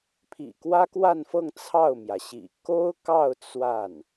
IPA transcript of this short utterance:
pʰ ḭ˨˩ k w ä˥ k w a˥˧ n f ɤ˥˧ ŋ t͡sʰ ɑ˥˩ ʊ̯ m j ä˩ ɕ ḭ˨˩ k o˥ ʊ̯ k ɑ˥˧ ʊ̯ t͡s w a˥˩ n

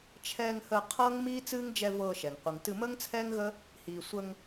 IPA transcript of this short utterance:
t͡ʃʰ ɛː˧ ŋ h əː˧ qʰ ɤː˦ ŋ m iː˦ t͡s ɨː˦ ŋ d͡ʒ ɛ˧ v ɤː˧ ʃ ɛ˨ ŋ qʷ ɨ˨ ŋ t ɨ˧ m əː˦ ŋ t͡sʰ ɛː˦ ŋ ɣ əː˦ | h iː˨ sʷ ə˧ ŋ

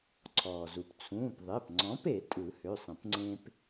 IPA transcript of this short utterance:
ǀʰ ɔː˩ z u˩ p t͡sʰ ũː˩˧˩ p ðˤ e˩˧˩ p ŋ͡ǀ ɔ̃˨˥ p e˨˩˦ tʼ ɯ˨˩˦ h ø˩˧˩ sˤ ə̃˨˩˦ p ŋ͡ǀ ẽ˦ p

